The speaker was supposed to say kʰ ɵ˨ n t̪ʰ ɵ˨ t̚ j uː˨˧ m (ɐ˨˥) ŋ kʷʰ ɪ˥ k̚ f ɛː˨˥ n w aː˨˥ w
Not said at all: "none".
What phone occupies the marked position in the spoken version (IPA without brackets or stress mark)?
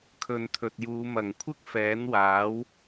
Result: ɐ˨˩